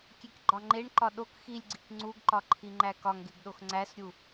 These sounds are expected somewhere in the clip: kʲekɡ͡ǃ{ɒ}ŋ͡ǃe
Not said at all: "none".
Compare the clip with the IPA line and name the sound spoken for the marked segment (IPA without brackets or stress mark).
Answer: ɒ